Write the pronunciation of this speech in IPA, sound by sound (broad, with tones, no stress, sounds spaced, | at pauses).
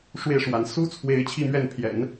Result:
ʂ w e˥˩ ɪ̯ ʂ w a˧˥ n s u˥ t͡sʰ w e˧˥ ɪ̯ t͡ɕʰ i˥˧ m ɥ ɛ˥˩ n pʰ j ɛ̰˨˩˦ n